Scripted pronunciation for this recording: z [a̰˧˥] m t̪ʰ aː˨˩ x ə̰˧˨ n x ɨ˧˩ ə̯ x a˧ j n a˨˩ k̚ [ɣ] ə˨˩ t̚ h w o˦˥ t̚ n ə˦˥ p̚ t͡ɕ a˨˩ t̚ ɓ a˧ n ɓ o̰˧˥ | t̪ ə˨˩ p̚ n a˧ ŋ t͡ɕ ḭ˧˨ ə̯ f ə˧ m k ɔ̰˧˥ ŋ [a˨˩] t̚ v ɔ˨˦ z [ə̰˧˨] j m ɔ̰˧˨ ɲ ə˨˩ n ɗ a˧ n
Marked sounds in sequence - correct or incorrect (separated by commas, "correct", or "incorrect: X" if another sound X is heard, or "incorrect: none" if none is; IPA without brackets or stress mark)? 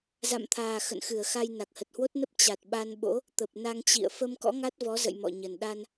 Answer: incorrect: a̰˧˨, incorrect: h, incorrect: a˦˥, correct